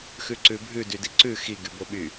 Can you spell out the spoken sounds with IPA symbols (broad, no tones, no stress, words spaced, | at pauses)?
xʉǀʉbʱʉ dydiǀʉ xi ɡyboɓy